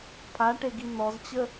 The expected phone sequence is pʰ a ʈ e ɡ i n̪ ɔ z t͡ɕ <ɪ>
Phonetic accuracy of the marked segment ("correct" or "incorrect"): incorrect